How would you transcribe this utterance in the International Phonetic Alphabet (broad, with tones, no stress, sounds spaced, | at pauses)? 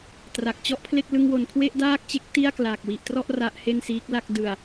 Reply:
t r a˨˩ k̚ t͡ɕ ɔ˥˩ ʔ pʰ l e˥˩ k̚ l ɯ˧ ŋ w o˨˩ n kʰ w e˥˩ ʔ d aː˥˩ k̚ t͡ɕ e˦˥ k̚ t i˥˩ a̯ k l aː˨˩ k̚ w i˨˩ ʔ t r ɔ˥˩ ʔ r a˦˥ ʔ h e˥˩ n s iː˦˥ k̚ l a˥˩ k̚ d ɯ˨˩ a̯